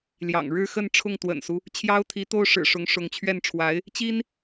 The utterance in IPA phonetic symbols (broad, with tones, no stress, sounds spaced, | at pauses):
l j ɑ̰˨˩ ŋ ɻ ɻ̩˥ x ə˥˧ n ʈ͡ʂʰ ʊ˥˩ ŋ t̪ w ə̰˨˩ n s u˦ | t͡ɕʰ j ɑ˥ ʊ̯ t̪ʰ i˧˥ t̪ o˥ ʊ̯ ʂ ɻ̩˨˩ ʂ ʊ˧˥ ŋ ʂ ʊ˧˥ ŋ t͡ɕʰ ɥ ɛ˥˩ n ʈ͡ʂʰ w a˧˥ ɪ̯ | t͡ɕ i˥ n